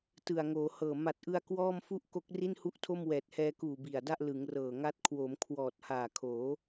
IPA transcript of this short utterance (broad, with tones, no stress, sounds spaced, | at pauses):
t ɯ˨˩ a̯ ŋ oː˩˦ h ɤː˨˩ m a˨˩ t̚ ʔ ɯ˧ a̯ k w ɔː˥˩ m f u˥˩ ʔ k o˦˥ k̚ r i˥˩ n h u˥˩ ʔ tʰ o˥˩ m w ɛː˨˩ t̚ h ɛː˧ k uː˨˩ b i˨˩ a̯ d a˥˩ ʔ l ɯ˩˦ ŋ r ɤː˨˩ ŋ a˦˥ t̚ kʰ w o˩˦ m kʰ w ɔː˨˩ t̚ h aː˨˩ kʰ oː˩˦